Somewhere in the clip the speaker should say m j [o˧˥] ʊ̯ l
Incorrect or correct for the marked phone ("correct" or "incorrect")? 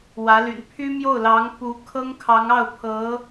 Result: incorrect